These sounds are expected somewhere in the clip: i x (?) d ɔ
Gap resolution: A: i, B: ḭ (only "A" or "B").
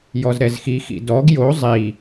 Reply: B